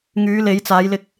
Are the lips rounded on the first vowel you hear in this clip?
yes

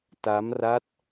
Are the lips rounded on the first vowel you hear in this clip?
no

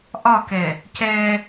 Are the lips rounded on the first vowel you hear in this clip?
yes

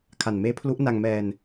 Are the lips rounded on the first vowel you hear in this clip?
no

